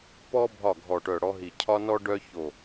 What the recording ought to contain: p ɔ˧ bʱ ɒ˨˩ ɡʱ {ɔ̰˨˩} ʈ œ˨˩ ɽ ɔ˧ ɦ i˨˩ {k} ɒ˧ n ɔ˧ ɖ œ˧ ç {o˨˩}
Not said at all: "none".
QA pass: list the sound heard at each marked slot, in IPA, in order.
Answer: ɔ˨˩, cʰ, o˨˩

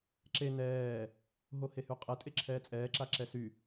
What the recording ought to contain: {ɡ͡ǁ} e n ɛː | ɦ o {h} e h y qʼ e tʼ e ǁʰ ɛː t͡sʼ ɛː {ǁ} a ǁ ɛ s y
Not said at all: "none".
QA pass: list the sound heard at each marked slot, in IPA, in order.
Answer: ǁ, h, ǁ

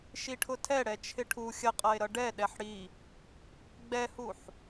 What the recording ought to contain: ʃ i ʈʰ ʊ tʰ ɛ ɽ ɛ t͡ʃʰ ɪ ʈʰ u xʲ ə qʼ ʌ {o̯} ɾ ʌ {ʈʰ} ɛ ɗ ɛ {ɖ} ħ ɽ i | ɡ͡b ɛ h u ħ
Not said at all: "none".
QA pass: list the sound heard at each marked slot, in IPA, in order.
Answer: e̯, ɖ, none

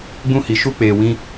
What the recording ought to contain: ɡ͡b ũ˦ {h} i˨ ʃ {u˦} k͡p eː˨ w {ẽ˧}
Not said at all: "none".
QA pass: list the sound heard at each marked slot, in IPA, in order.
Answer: h, u˦, ĩ˧

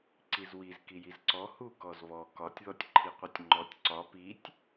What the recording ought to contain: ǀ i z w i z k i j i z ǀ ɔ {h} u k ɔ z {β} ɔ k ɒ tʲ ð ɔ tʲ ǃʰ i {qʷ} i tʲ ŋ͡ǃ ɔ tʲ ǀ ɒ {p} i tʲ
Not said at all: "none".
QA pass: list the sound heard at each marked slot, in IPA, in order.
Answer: h, β, qʷ, p

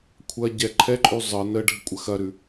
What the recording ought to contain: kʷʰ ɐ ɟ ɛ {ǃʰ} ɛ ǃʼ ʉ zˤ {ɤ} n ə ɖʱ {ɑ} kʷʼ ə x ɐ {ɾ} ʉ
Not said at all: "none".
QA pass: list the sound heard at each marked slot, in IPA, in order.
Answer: ǃʰ, ɤ, ə, ɾ

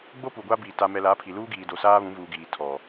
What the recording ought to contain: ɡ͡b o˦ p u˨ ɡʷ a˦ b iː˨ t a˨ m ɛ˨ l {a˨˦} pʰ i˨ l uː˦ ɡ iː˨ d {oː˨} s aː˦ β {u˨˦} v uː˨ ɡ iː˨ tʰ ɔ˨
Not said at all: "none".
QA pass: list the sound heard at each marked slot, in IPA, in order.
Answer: a˨˦, o˨, ũ˨˦

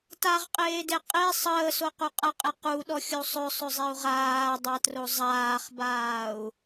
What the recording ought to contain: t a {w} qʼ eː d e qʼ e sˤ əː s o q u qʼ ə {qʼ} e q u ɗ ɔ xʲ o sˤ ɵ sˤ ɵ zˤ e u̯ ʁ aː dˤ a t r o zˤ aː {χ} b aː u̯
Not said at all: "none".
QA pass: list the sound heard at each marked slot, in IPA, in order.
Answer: ʁ, qʼ, χ

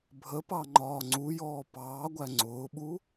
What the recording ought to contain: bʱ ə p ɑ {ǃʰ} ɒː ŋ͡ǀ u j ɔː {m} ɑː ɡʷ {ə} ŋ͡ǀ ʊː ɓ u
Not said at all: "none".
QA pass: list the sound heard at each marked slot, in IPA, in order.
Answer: ŋ͡ǃ, p, æ

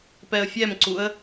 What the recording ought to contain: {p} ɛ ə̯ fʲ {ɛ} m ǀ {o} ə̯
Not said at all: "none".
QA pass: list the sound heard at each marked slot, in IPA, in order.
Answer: p, ɛ, u

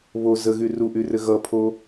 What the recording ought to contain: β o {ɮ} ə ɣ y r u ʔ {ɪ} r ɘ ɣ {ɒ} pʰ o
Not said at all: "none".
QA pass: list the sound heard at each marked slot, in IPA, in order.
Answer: z, y, ʌ

